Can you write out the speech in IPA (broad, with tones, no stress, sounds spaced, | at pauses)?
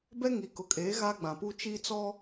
b ɛ˦ ŋ i˨ k ʊ˨ kʼ eː˨˦ ɣ a˦ ɡ͡b ã˨ p u˦ t͡ʃ i˦ t͡s ɔ˦